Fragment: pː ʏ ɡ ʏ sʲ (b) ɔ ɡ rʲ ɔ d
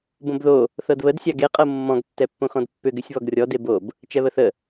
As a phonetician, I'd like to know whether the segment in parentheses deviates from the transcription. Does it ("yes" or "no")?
yes